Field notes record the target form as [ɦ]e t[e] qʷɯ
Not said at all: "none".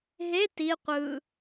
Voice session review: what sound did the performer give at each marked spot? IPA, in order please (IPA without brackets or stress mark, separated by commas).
ɦ, i